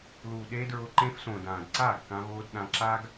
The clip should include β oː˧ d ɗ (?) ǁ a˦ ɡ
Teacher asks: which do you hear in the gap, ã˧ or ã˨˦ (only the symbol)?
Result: ã˧